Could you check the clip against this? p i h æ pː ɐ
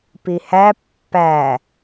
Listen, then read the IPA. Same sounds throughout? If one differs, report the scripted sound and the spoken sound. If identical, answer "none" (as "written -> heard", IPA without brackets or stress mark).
ɐ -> æ